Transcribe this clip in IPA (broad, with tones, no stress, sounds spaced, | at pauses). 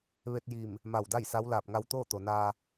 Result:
ʋ e˧ t̚ j i˧˩ m | m a˧˩ w d a˥˨ j s a˧˥ w l aː˧˩ p̚ ŋ a˧ w t̪ oː˥˨ t̪ o˩ n aː˧